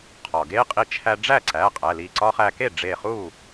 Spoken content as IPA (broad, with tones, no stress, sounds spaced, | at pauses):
qʰ ɒ˩ ɡ e˦˥ qʼ i˧ t͡ʃʰ æ˧ ɖ͡ʐ æ˥˩ ǀ æ˩˧˩ qʼ æ˩˧˩ l i˧˩ ǀ ɒ˦˥ χ æ˧ k e˥˩ ɖ͡ʐ e˧˩ χ u˥˩